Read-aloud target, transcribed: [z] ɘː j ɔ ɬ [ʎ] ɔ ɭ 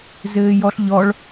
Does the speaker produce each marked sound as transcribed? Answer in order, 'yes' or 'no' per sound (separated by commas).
yes, yes